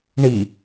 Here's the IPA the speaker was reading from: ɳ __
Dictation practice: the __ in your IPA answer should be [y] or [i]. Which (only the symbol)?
i